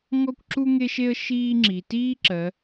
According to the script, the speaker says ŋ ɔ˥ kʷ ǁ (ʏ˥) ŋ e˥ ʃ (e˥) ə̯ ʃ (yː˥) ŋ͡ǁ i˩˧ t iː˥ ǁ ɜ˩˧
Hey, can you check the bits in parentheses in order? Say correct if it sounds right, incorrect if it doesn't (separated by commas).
incorrect, correct, incorrect